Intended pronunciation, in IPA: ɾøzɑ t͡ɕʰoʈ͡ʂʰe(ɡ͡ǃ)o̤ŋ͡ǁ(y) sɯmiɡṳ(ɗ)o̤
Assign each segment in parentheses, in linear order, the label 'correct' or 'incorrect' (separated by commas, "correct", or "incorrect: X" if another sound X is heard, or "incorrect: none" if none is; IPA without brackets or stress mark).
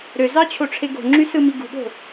incorrect: ɡ, correct, incorrect: ɠ